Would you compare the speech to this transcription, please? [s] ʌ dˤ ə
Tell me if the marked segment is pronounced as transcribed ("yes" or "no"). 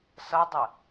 yes